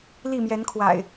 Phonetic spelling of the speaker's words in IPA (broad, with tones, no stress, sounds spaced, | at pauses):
l i˥˨ m j ɛ˨˦ n kʰ w a̰˨˩ ɪ̯